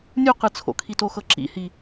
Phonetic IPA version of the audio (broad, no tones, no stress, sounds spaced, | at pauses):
nʲ u q ɯ t͡sʰ o̰ kʰ i t o x ɤ ǁ ḭ h i